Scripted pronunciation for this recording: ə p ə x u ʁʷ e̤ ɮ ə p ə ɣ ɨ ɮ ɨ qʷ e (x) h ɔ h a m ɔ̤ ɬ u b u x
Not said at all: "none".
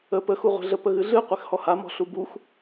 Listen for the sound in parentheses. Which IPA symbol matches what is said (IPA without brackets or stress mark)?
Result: x